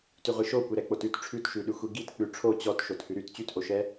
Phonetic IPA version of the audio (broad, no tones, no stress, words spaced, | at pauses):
tyʁʷiʃokʷe ɾɛk͡potʉt ʈ͡ʂʰʉtʃʉɗʉxʷi ɡit k͡pʉʈ͡ʂʰo t͡ɕɔt ʃothʉɾyt t͡ɕytʔoʃɛ